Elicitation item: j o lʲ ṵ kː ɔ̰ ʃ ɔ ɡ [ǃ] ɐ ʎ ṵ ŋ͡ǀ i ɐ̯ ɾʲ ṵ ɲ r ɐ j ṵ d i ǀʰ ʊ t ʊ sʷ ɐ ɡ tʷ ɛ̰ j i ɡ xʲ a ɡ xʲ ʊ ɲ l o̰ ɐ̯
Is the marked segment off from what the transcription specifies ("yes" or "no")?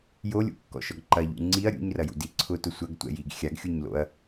no